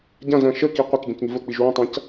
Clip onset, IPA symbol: ɟ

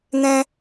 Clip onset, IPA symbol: n̪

